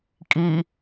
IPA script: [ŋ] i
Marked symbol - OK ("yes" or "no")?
no